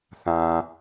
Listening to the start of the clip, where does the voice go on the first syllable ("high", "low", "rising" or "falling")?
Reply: low